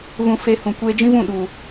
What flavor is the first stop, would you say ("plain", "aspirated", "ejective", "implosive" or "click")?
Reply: plain